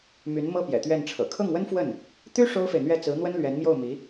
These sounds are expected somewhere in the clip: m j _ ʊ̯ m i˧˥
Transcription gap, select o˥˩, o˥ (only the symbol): o˥˩